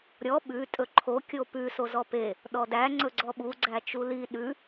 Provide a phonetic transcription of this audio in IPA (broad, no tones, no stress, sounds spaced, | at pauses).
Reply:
ɾʲ ɔ ɓ ʉ tʼ ɵ ǃʰ o kʲ o p ʉ s o z ɔ p e | ɗ ɔ d æ ŋ͡ǀ ɵ ɡ͡ǀ ɔ ɓ u ɡ͡ǀ æ t͡ʃ u l i ɗ ʉ